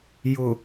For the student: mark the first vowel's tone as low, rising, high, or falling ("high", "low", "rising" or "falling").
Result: low